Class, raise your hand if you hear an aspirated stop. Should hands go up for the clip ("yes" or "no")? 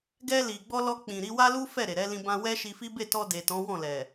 no